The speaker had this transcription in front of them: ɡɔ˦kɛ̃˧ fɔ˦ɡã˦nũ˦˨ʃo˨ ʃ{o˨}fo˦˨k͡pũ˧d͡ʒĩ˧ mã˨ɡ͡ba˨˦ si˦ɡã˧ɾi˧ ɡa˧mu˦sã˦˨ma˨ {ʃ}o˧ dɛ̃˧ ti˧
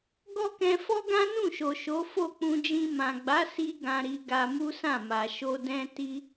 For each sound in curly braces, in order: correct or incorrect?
incorrect, correct

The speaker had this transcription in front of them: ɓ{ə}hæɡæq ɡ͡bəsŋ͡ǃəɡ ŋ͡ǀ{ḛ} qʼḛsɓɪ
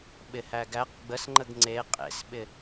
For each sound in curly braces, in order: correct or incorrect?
incorrect, incorrect

